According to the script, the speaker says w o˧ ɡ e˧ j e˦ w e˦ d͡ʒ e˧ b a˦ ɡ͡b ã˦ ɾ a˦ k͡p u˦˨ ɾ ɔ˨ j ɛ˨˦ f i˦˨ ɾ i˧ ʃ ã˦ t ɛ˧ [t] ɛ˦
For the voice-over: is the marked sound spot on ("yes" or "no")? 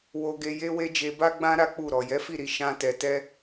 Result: yes